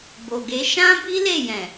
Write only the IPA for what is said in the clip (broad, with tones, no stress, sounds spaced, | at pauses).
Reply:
b o˨ ɡ e˨˦ ʃ ã˦ b i˦ l e˦˨ j ɛ̃˨